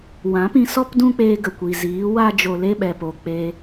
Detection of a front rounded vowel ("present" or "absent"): absent